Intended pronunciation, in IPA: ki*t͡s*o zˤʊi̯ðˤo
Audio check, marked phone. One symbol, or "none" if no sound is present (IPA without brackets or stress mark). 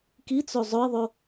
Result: t͡s